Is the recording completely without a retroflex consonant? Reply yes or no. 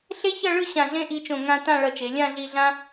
no